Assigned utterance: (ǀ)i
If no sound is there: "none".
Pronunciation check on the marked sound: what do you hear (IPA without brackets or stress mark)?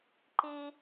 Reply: ǃ